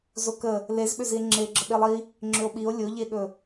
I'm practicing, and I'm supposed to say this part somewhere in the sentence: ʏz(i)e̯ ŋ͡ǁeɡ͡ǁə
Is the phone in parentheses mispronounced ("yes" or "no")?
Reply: no